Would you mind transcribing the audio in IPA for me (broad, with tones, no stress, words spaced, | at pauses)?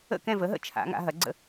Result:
ə̰˥˨kɛ̃˥˨və˩˥ɦə̰˥˨ t͡ʃʰa̰˩˥ŋa̰˩˥ ɦɐ˩˥ɡ͡ǀə̰˥˨